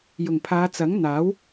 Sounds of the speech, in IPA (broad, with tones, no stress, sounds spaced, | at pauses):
j ʊ˨˩ ŋ pʰ aː˨˧ t͡s ɐ˨˥ ŋ n̪ aː˨˥ w